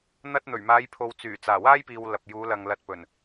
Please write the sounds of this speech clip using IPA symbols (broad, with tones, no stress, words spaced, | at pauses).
n̪ɐ˧t̚ n̪ɵ˨˩ɥmaː˨˧jpʰo˨w t͡syː˨˩ t͡saː˨˩waː˥jpiː˨w lɐ˨p̚juː˨˧lɐ˨ŋ lɐ˧t̚pɵ˨˩n